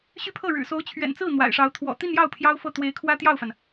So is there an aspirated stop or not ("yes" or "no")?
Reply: yes